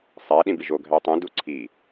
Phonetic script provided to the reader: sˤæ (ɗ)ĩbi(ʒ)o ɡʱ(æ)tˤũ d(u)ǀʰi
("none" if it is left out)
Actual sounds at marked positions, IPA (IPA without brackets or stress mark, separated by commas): ɗ, ʒ, æ, u